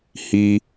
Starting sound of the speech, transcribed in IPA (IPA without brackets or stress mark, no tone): h